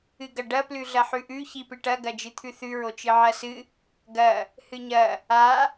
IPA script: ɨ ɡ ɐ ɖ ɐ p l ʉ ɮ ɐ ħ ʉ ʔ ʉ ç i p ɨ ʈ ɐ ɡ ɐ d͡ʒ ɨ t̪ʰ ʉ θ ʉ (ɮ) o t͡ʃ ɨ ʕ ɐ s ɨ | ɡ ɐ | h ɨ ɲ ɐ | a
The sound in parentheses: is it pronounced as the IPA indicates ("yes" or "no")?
no